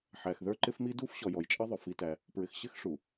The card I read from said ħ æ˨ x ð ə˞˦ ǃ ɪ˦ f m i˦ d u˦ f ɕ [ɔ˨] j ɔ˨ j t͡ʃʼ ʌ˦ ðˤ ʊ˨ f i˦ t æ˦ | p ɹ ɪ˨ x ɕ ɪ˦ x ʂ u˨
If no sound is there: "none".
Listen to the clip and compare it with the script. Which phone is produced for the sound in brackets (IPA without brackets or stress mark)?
ɔ˨